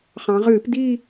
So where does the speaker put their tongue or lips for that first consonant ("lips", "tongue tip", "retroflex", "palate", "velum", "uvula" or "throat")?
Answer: uvula